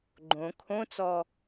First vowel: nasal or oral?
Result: nasal